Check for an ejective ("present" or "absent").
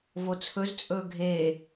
present